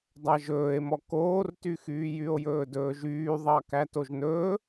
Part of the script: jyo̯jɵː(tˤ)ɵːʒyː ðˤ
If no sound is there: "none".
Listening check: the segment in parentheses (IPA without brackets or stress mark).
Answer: d